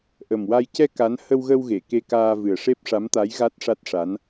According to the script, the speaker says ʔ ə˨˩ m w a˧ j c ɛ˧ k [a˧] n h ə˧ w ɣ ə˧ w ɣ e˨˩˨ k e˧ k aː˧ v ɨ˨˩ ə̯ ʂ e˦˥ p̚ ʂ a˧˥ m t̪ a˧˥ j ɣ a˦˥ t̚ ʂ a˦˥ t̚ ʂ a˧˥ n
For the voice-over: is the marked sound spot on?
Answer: no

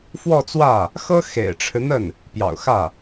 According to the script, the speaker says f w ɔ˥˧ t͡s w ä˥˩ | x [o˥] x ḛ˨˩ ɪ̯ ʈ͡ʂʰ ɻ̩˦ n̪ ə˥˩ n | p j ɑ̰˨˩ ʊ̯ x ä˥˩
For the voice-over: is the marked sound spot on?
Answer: no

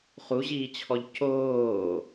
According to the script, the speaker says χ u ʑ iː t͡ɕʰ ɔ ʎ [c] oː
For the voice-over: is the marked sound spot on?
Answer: yes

